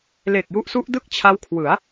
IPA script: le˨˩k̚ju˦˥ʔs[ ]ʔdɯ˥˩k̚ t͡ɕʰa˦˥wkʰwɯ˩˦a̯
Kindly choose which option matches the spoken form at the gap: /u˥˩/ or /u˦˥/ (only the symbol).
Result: u˦˥